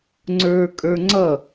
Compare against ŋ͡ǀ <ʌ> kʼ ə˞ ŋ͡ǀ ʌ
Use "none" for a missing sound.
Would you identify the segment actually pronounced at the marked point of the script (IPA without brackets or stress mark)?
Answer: ə˞